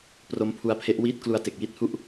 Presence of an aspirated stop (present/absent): present